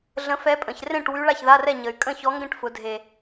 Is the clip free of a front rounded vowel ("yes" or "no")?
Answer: no